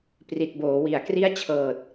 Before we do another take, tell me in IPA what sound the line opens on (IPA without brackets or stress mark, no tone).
p